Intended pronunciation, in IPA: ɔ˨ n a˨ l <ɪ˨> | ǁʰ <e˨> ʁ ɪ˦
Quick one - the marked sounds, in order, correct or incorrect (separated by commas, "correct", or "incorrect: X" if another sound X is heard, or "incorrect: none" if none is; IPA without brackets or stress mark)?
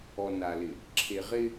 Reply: correct, correct